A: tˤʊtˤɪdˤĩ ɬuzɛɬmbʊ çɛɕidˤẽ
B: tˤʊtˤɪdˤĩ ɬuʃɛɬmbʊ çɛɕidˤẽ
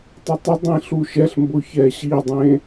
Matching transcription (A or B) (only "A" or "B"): B